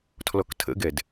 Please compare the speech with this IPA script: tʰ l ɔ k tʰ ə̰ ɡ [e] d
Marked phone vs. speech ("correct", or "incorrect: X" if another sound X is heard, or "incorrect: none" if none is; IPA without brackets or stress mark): incorrect: ɛ